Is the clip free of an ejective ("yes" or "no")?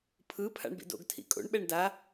no